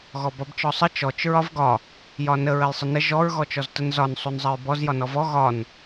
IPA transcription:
ɣ ɔ b ɒ b t͡ʃ ɔ sˤ ə t͡ʃ ɔ t͡ʃ ɹ ɒ v ɡ ɒ | j ɒ n ə ɹ ə j sˤ ə n ə ʒ ɔ ɹ ɣ ɔ t͡ʃ ɔ z t ə n z ɒ n sˤ u n zˤ ə ɹ b ɔ z j ɒ n ɔ v ɔ ɣ ɒ n

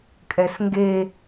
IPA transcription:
kʼ ɛ s ŋ ɡ e

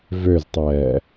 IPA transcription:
v ø z tˤ ɛː

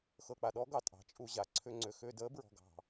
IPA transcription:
x ɤ˨ k͡p a˨ ɗ ɔ˨˦ ɡ ɑ˨ tʼ ɑ̤˨ t͡ʃʼ u˧ ʑ a˨ ǀʰ ʏ˧ ŋ͡ǀ ʏ˨ x ʏ˧ d ə˨˦ b ɹ ɔ̤˨ ɡ ɑ̤˨

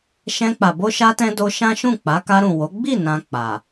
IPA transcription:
ʃ ɛ̃˧ k͡p a˨ b o˧ ʃ a˧ t ɛ̃˧ d o˧ ʃ ã˦ ʃ ũ˦˨ k͡p a˨˦ k a˧ ɾ ũ˨ w o˨˦ ɡ͡b i˦˨ n ã˧ k͡p a˨

